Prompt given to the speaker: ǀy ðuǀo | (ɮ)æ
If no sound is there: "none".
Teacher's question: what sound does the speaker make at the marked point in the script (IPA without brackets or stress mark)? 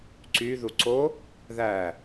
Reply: ð